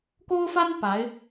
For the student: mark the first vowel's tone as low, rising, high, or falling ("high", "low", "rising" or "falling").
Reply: high